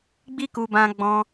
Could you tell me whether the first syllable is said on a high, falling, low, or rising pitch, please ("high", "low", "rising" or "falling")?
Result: high